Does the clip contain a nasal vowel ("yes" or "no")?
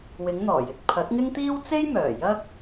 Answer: no